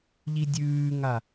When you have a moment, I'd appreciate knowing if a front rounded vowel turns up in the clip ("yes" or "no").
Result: no